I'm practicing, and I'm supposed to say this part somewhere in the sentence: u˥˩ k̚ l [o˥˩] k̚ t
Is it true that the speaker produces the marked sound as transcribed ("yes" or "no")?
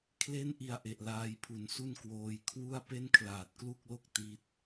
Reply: yes